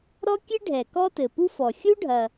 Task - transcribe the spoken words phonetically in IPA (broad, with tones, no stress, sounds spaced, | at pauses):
ɾ ɔ˥ kʲ ɨ˥ ɖʱ ɛ˩ k ɔ˥ t ɘ˩ p u˥ f ɔ˩ xʲ u˥ ɖʱ ɐ˩